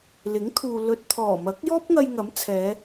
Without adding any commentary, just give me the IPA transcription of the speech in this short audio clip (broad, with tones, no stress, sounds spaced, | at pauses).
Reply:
l ɪ˨˥ ŋ t̪ʰ uː˨ l ɵ˨ t̚ t̪ʰ ɔː˨˩ m ɐ˨˥ k̚ j ɔː˥ p̚ ŋ ɐ˧ j ŋ ɐ˨˥ m t͡sʰ ɛː˨˧